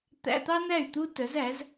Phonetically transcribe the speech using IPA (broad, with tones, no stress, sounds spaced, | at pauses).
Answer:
t̪ æ̰˧˥˧ t̪ ɑ˥ n æ˥˩ y̯ t̪ u˥ t œ˨˥ z æ˨˥ z